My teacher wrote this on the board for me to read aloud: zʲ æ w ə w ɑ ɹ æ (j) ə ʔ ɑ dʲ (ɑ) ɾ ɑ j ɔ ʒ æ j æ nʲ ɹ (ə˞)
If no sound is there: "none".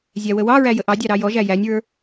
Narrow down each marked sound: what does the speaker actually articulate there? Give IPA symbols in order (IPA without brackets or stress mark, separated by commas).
j, ɑ, ə˞